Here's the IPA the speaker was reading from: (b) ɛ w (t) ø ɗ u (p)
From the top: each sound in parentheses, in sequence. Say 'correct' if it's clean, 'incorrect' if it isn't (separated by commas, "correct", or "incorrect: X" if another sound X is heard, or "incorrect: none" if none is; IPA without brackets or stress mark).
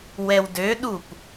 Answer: incorrect: w, incorrect: d, correct